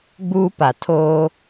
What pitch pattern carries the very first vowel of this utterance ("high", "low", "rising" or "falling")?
high